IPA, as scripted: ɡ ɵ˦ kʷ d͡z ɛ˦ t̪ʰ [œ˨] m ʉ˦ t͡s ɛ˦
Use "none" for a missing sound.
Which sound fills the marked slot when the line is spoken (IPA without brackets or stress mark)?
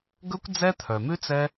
œ˨